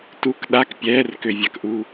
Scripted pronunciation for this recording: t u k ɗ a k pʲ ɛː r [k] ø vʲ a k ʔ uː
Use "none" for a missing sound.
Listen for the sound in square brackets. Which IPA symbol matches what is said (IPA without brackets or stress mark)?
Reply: k